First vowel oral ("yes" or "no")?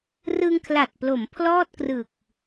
yes